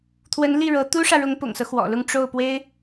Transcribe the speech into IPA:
t̪ʰ w ə˧˥ n l i˥˩ ɻ ɤ˧˥ t̪ u˥ ʂ ä˨ ɻ ʊ˧˥ ŋ p ʊ̰˨˩ ŋ s ɤ˦ x w ɔ̰˨˩ l ʊ˥˧ ŋ ʈ͡ʂ o˥˩ ʊ̯ p w e˥ ɪ̯

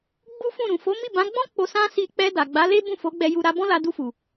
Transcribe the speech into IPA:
ɡ͡b u˦ f ũ˦˨ ɾ ũ˨ f o˨˦ m i˦˨ b ã˨˦ ɡ͡b ɔ̃˦ k͡p o˧ s ã˦ s i˧ k͡p ɛ˧ d a˨ ɡ͡b a˨˦ l e˦ b ũ˦˨ f o˨˦ ɡ͡b ɛ˧ j u˧ ɾ a˧ b ɔ̃˦ l a˧ d u˧ f u˨

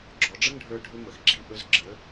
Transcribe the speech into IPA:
ɡ͡ǁ ɔ˩˧ ɖ͡ʐ ə˥ ŋ ɖʱ ə˞˧ ɖʱ ɵ˧ m ə˩ x ɡ͡ǁ i˧ ʔ ɵ˧ z ɡ͡ǁ ə˩˧

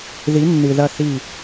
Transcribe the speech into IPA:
ð i˩˧ nː ɨ˩ ð ɐ˧˩ θ i˧˩

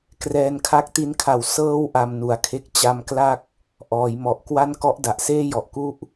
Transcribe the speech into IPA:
k r ɛː˧ n kʰ a˦˥ k̚ t i˦˥ n kʰ a˨˩ w s ɤː˧ w ʔ a˧ m n u˨˩ a̯ kʰ e˥˩ k̚ t͡ɕ a˧ m k l a˥˩ k̚ | ʔ ɔː˩˦ j m ɔ˨˩ ʔ k w a˥˩ n k ɔ˦˥ ʔ d a˨˩ ʔ s eː˥˩ j ɔ˨˩ ʔ k u˦˥ ʔ

